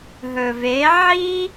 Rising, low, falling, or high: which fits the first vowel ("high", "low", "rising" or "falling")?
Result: low